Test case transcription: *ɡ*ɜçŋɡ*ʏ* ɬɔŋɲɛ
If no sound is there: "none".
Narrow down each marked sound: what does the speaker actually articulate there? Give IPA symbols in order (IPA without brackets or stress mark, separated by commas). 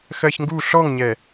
x, u